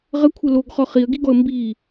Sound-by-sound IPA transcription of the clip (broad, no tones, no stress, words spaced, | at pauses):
ʁəkʷʰə loɡχɔ χiə̯ɡiɡɔə̯ mbi